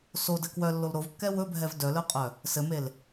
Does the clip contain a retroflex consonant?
no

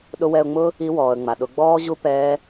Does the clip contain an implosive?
yes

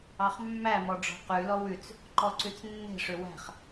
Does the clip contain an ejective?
no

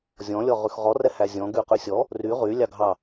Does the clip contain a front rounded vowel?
yes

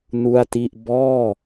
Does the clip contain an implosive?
no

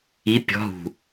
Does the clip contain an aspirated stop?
no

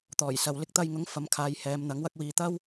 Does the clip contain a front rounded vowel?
no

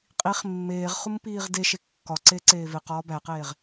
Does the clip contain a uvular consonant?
yes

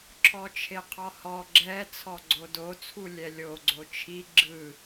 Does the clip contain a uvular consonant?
yes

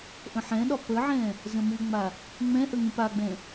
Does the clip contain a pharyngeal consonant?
yes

